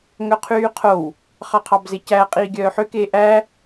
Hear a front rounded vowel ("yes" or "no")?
yes